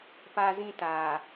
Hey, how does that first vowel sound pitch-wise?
high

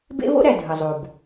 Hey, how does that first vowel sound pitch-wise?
high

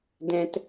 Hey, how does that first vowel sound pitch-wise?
low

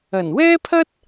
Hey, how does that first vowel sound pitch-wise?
low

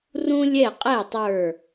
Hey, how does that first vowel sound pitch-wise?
high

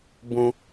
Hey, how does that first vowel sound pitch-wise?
high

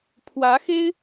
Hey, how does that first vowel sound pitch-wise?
rising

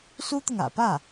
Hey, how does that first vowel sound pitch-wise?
high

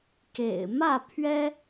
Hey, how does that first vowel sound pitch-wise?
low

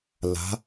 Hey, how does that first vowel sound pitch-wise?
rising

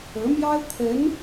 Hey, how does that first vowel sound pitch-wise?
rising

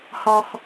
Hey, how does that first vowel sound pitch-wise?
high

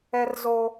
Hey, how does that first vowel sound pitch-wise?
high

